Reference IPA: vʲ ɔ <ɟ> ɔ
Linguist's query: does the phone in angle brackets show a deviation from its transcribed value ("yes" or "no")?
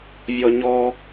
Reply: yes